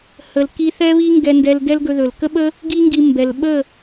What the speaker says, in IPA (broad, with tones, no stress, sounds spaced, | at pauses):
h ə˨ l k i˧ θ ɛ˦ β i˦ ŋ ɡ ɛ˧ n d ɛ˧ l d ɛ˦ l ɡ ɵ˧ ð ɵ˨ l k ə˦ ɓ ə˦ | ɡ i˦ ŋ ɡ i˧ m b ɛ˨ l ɓ ə˦˨